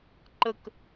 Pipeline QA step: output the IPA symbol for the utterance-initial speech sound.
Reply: ǃ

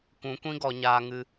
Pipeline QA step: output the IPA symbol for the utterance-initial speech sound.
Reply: kʷ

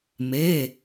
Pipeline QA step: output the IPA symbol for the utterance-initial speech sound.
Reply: m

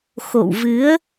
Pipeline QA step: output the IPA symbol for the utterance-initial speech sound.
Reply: x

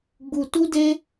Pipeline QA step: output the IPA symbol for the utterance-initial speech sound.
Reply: ɡ͡b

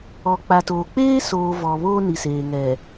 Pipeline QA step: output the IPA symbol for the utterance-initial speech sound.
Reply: ɔ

